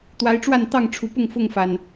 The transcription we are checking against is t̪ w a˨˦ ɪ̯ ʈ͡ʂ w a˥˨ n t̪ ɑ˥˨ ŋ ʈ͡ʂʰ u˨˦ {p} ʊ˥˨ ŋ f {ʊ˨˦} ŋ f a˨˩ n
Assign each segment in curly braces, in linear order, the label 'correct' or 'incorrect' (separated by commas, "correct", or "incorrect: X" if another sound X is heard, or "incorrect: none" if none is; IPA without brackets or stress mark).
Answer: correct, incorrect: ʊ˥˨